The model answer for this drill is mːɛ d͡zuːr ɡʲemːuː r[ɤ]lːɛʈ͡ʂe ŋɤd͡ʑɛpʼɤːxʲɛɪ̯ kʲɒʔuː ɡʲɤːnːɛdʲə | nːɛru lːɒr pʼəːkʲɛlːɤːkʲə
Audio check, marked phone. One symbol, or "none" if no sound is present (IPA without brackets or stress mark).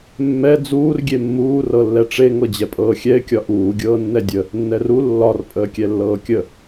ɤ